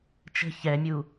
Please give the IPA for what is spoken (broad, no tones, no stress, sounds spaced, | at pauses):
t͡ʃ ə̤ ç ɛ mʲ u